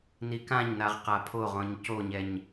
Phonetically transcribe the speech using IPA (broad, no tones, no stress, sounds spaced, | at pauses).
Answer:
n i k ã ɲ n a ʁ q a pʰ o ʁ ɔ̃ ɲ c o ɲ ɛ ɲ